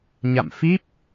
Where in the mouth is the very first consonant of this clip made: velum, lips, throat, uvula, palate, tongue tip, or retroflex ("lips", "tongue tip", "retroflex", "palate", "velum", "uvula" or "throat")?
palate